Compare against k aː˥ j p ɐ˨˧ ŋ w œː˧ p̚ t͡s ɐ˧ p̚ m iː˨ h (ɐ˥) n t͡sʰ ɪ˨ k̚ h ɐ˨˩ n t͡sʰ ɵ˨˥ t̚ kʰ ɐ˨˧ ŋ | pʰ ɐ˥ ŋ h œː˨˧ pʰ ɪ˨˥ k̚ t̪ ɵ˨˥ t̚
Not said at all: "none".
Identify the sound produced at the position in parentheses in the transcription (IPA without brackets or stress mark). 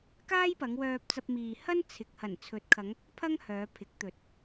ɐ˥